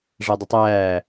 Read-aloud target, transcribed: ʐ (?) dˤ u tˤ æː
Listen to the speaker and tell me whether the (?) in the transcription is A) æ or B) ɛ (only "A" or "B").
A